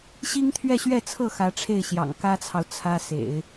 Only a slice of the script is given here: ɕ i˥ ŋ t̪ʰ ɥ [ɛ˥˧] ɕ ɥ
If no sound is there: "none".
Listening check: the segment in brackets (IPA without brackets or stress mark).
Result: ɛ˥˧